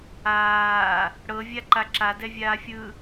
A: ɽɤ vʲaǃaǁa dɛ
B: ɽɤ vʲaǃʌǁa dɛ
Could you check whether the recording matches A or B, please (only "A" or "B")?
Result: A